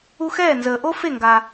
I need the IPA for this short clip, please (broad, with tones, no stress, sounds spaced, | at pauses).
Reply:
u˧ x ɛː˥˩ n z əː˩ ʔ o˥ f e˥˩ ŋ ɡ a˩